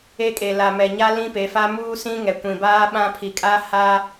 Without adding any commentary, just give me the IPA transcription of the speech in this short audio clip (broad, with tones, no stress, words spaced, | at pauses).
e˦ kʼe˨la˨ mɛ˨ɲa˦ lĩ˦pe˨˦fa˦ muː˦sĩ˦ ŋɛ˨kʷĩ˨baː˦ ɓã˦pʰi˨kʼa˦ ha˦